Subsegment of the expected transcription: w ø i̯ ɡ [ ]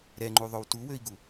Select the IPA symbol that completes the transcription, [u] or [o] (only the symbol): u